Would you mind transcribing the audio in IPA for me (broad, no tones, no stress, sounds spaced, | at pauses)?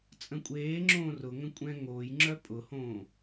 t͡sʼ ə̃ kʷʼ eː ŋ͡ǁ õː r ʊ ŋ ə̃ kʷʼ ɛ̃ ŋ oː j ŋ͡ǁ œ pʼ ʊ h õː